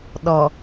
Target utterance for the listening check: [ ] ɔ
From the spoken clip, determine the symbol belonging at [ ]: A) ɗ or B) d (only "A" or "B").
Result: A